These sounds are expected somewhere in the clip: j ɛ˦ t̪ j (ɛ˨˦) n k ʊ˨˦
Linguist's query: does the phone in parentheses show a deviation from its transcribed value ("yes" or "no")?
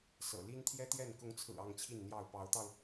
yes